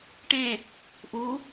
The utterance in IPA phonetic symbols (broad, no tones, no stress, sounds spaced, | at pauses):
ʈ ẽ | ʔ u